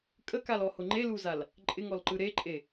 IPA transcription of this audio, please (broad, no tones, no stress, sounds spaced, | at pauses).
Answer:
kʼ ə k a l ɔ h ʊ ŋ͡ǃ e l u z a l | ǃʼ ɪ ŋ ɔ l ǃ ɯ ɾ e ǃʼ e